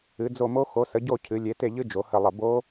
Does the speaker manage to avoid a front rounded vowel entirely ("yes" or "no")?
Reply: yes